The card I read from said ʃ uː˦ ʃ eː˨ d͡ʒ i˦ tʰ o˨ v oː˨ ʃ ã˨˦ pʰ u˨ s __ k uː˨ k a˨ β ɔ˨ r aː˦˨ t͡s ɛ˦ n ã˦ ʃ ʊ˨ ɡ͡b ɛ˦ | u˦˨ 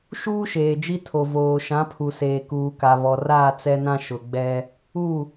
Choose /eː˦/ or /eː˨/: eː˨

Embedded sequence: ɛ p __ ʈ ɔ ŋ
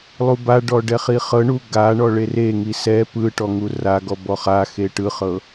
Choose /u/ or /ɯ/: ɯ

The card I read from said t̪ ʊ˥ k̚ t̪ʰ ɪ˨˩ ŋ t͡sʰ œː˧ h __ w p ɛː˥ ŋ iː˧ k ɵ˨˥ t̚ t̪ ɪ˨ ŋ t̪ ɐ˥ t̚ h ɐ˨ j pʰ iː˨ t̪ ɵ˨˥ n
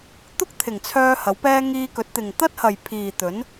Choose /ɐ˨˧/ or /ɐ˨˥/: ɐ˨˥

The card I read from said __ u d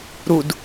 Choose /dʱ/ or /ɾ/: ɾ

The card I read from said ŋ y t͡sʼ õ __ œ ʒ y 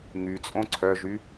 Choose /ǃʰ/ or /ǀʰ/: ǀʰ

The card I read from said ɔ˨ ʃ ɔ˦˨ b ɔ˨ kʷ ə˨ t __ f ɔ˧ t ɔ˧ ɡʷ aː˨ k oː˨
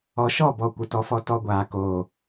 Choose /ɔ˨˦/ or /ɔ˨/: ɔ˨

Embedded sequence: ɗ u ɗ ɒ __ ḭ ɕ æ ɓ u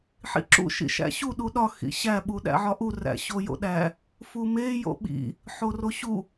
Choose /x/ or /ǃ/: x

